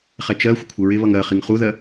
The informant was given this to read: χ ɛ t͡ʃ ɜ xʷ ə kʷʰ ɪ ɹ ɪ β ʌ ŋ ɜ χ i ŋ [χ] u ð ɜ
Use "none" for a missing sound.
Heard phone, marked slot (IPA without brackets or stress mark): χ